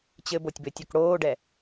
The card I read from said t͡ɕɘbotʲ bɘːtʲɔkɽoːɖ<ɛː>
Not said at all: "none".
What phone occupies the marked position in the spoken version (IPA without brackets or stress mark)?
ɛ